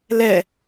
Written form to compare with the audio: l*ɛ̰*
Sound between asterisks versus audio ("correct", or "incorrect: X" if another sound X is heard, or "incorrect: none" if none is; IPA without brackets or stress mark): incorrect: ɛ